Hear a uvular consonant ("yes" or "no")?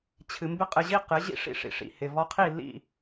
yes